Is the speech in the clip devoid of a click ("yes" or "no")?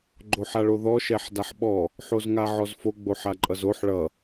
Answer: no